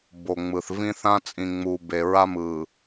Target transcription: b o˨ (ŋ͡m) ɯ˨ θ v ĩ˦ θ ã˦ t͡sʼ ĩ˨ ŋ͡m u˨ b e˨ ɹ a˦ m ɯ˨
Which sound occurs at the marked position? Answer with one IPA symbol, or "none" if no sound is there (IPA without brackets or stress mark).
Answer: ŋ͡m